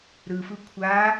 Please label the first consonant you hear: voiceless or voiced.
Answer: voiced